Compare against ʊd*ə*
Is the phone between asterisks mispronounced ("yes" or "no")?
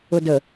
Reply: no